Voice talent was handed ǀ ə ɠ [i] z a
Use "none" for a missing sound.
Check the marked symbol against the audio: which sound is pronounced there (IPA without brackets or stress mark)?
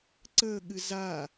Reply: ɨ